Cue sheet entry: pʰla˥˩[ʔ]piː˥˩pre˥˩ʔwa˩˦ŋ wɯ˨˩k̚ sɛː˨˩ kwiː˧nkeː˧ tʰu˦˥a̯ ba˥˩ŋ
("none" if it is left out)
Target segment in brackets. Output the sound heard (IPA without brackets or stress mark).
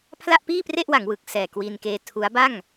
ʔ